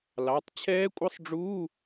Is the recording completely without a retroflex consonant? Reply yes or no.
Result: no